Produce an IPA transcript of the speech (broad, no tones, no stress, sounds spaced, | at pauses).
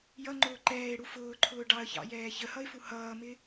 j ʌ ŋ͡ǃ ʊː ǃ ɛː ɪ̯ ɽ u f ʊː ǃʰ ʊː ɖ ɑ ə̯ ç ɑ̰ j ɛː ç ə h ʌ ɪ̯ f u h ʌː m ɪ